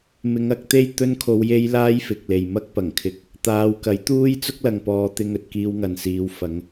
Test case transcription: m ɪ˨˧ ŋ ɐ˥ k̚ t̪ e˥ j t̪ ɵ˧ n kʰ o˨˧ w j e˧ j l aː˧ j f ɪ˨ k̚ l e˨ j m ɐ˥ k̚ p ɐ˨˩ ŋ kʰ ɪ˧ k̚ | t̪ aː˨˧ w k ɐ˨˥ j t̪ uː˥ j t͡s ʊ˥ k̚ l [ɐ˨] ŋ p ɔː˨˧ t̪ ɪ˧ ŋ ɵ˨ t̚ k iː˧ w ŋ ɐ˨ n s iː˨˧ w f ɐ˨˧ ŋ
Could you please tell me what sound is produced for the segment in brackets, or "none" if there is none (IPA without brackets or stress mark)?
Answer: ɐ˨